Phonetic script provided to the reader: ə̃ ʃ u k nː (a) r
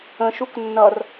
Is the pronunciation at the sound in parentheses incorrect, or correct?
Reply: incorrect